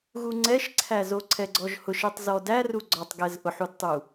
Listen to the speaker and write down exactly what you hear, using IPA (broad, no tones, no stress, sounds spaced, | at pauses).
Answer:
ɣ u ŋ͡ǀ ɛ ʃ ǀʰ æ z o ǀʰ ɛ ɡ͡ǀ ɔ ʒ h ʊ ʃ ɛ tˤ z ɔ d æ r u ɡ͡ǀ ɔ tˤ ɡ ɛ z ʔ ʊ ħ u d tˤ u